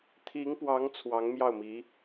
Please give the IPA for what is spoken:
t̪ʰ i˧˥ ŋ p w ɑ˧˥ ŋ t͡sʰ w ɑ˧˥ ŋ m j ɑ˥˩ ʊ̯ m i˧˥

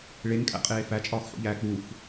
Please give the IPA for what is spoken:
ɭ e ŋ kʼ æ̰ qʼ eː f æ t͡ʃʼ ɒː x ħ ṵ ʎ æː k͡p u f

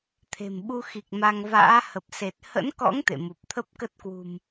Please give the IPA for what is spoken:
t̪ʰ e̤˨˩ m ɓ u˧ x i˨˩ k̚ m a˧ ŋ v a̰ː˧˥ h ə˨˩ p̚ s e˨˩ t̚ h ə̰˧˥ n k ɔ̰˧˥ ŋ t̪ ḛ˧˨ m u˨˩ p̚ t̪ʰ ə˦˥ p̚ k ə˦˥ t̚ k w ṳ˨˩ m

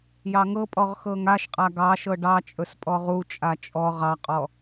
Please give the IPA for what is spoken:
j ɑ ŋ ɤ pʼ ɔ ʁ x ɤ ŋ a ʃ qʼ a ɡ ɑ ʃ ɤ ɖ ɑ t͡ʃʼ ɵ s pʼ ɔ ʁ u t͡ʃʼ a t͡ʃʼ ɔ ʁ ɑ qʼ ɔ

